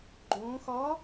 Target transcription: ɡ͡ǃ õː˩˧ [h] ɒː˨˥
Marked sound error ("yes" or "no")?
yes